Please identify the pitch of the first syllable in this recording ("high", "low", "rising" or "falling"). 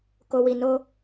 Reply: low